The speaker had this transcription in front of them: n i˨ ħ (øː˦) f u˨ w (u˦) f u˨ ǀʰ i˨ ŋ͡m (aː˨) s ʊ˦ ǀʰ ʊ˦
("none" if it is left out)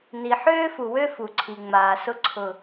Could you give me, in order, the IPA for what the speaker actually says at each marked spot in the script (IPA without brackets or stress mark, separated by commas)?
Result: øː˦, ø˦, aː˨